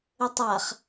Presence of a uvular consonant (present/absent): present